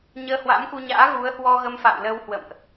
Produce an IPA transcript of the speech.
ɲ əː˧ h w a̰˧˥ m k u˧ ɲ a̰ː˧˥ ɣ u˨˦ ə̯ h w ɔ˧ ɣ ə˧ m f a̰ː˧˨ w l ə˧ w h w ə̰˧˨ m ʔ

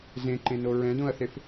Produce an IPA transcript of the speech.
z ẽ ǃ ẽ n o ɹ ɛ̃ d õ ɐ̯ θ e f

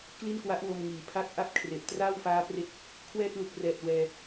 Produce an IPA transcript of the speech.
k l i˥˩ n k w a˦˥ ʔ w o˧ m ŋ iː˩˦ pʰ a˦˥ k̚ ʔ a˥˩ p̚ kʰ r e˨˩ ʔ t r aː˥˩ w f aː˦˥ p r e˦˥ k̚ | kʰ w ɛː˥˩ t̚ l u˨˩ k̚ r ɛː˨˩ t̚ w ɛː˧

